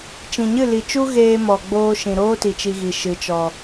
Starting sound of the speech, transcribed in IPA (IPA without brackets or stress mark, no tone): t͡ʃ